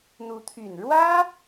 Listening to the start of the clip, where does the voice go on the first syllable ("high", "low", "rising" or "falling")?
rising